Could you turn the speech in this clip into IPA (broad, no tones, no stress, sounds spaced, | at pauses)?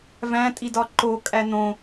v æ̃ tʼ i d ɒ ǃ o kʼ æ n̪ õ